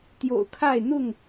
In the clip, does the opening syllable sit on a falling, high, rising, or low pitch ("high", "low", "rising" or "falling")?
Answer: low